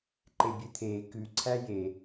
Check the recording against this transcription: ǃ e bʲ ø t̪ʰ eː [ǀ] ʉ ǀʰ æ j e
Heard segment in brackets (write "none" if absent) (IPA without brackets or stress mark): k